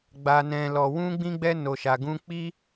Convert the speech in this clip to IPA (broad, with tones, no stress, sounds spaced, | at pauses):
ɡ͡b a˨ n ɛ̃˨ l ɔ˨ w ũ˧ ɡ͡b ĩ˧ ɡ͡b ɛ˧ n o˨ ʃ a˨ ɡ ũ˧ k͡p i˧